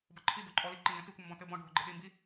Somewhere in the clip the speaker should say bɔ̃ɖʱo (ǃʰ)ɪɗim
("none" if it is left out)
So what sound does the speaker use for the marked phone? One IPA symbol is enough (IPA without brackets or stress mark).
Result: ɡ͡ǃ